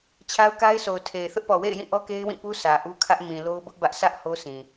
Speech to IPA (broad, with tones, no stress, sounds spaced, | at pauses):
t͡ɕʰ a˦ ʊ̯ k a˦ ɪ̯ s o˨ ʊ̯ tʰ e˨ ɪ̯ θ ʊ˦ ʔ p ɔ˨ w ḛ˦˨ ɪ̯ j ĩ˦˨ ʔ ɔ˦ k e˦ ɪ̯ w ĩ˦˨ p u˦ sʰ ä˨ ʔ u˦ kʰ ä˦ ʔ m ĩ˨ l o˦ ʊ̯ b ʊ˦ ʔ b ä˦ ʔ s ä˦ ʔ h o˦ s ĩ˨